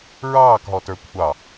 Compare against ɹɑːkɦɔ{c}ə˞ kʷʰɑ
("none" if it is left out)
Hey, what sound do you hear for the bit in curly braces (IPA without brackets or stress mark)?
t